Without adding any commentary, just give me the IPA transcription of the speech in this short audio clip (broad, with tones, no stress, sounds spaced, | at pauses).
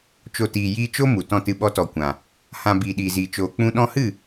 t͡ʃ o˨ t iː˨ j iː˧ t͡ʃ o˦ m u˨ t ɔ̃˧ t ɨ˧ ɓ ɔ˧ t ɔ˨ kʷ ã˨ | h ã˨ b iː˨ ɗ iː˨ z iː˨ t͡ʃ oː˨ k͡p ũ˧ ɗ ɔ̃˧ h ɨ˦˨